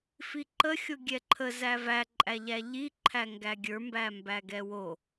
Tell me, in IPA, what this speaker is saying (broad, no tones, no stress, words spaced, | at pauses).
fiǃə xʲoɡʲɛǃʰə zævæ ǃʼæʎæʎi ǃʰæŋɡæɡʲə˞ mbæmbæɡɛwo